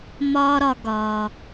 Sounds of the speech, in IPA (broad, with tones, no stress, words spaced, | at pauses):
mɒː˥ɾɒ˧ ɡɒː˩